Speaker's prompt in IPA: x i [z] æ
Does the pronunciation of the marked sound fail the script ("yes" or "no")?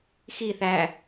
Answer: yes